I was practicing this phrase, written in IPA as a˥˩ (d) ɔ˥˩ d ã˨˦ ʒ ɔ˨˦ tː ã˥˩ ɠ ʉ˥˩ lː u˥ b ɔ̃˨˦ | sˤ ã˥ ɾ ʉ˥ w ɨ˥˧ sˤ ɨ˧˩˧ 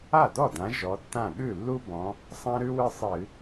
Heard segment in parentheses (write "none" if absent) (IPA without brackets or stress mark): d